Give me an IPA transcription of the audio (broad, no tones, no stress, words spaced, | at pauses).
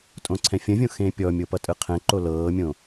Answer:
tʼõǀʰɛ̃fʲə̃vʲõ xẽpʲɔmʲo pʌtʼɯqʰɛ̃ǃo lɤːmʲõ